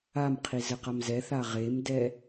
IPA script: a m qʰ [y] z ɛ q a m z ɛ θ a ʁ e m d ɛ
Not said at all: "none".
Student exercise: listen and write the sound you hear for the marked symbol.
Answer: i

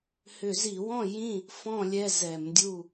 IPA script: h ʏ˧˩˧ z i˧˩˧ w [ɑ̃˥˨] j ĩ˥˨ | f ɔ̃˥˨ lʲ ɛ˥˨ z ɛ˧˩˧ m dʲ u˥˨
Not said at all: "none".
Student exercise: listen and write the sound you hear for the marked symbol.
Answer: ɔ̃˥˨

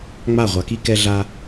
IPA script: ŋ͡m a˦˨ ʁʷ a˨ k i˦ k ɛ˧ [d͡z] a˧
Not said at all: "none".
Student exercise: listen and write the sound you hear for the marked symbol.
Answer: ɮ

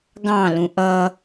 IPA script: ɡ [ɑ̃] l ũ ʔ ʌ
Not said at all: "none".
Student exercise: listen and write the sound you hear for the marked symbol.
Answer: ɑ̃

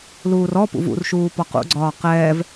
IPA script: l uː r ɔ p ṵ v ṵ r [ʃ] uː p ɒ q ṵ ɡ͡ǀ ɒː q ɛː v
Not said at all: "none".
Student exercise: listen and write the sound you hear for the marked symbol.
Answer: ʃ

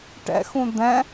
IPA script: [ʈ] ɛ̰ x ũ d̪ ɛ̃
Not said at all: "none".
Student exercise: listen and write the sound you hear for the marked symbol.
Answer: ʈ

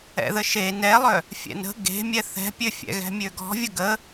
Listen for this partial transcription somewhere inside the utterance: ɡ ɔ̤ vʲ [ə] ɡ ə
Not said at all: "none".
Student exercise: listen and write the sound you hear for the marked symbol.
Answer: ə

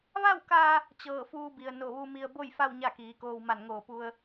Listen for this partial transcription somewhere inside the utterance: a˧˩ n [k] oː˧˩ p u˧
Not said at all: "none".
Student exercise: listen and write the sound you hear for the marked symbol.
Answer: ŋ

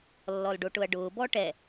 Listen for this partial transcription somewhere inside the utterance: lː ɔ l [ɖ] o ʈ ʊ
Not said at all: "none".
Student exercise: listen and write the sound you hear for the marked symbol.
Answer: ɖ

